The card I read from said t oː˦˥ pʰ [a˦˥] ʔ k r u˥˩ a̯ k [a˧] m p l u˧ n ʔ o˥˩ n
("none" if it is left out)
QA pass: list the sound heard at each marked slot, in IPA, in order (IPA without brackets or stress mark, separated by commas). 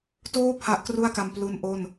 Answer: a˦˥, a˧